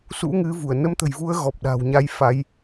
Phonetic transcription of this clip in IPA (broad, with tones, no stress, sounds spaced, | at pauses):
s ṵ˧˥ ŋ ɨ˨˦ v u˧˩ ə̯ n ə˨˦ m t̪ ə̤˨˩ j v u˨˦ ə̯ ɣ ɔ˨˩ p̚ ɗ a̤ː˨˩ w ɲ a˧ j f a˨˦ j